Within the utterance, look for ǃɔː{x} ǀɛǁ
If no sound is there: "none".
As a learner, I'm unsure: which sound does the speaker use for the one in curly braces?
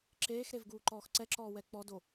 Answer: x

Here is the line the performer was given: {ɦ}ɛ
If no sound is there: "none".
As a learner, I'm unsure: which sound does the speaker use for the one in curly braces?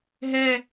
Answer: ɦ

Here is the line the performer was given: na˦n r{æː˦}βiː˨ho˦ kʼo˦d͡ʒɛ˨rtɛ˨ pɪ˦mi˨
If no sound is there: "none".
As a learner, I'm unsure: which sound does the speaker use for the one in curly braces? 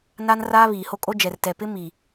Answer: aː˦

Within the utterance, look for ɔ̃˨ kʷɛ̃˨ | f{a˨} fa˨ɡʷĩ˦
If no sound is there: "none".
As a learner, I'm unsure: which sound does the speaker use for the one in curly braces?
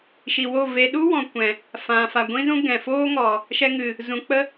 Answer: ã˨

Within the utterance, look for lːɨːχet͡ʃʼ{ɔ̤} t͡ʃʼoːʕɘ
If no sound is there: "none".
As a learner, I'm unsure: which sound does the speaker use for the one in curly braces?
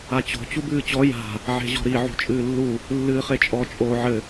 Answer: ɔ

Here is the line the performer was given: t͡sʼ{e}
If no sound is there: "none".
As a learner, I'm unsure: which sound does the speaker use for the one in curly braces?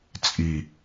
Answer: i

